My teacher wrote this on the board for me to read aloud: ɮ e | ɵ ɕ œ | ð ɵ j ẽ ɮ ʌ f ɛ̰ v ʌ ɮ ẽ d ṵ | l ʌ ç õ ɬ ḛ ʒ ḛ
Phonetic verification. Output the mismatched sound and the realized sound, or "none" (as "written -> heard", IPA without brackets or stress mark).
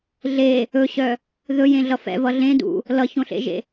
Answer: none